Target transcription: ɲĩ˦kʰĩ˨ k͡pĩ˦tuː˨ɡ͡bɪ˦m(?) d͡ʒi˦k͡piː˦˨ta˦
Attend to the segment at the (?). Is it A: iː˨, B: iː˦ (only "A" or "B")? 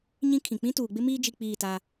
B